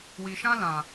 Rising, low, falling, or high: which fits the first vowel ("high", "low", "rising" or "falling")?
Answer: low